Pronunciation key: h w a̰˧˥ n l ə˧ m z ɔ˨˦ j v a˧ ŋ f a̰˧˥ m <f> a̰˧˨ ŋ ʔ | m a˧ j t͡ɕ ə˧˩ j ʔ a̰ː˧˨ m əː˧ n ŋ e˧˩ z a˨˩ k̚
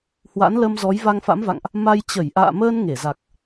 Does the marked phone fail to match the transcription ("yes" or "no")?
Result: yes